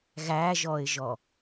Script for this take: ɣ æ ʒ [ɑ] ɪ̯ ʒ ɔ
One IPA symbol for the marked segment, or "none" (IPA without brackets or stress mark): ɔ